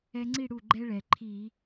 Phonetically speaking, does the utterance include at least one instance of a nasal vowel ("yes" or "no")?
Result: no